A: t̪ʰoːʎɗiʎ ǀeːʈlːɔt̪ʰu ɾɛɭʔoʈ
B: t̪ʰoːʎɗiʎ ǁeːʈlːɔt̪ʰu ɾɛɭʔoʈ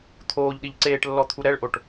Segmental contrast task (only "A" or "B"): A